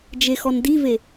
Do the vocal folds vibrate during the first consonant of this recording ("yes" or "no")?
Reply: yes